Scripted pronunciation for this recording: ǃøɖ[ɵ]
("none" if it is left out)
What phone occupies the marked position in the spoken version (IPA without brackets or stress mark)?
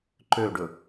ɵ